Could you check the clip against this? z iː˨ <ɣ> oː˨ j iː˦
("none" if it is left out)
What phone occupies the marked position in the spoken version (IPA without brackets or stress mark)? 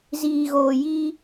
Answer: ɣ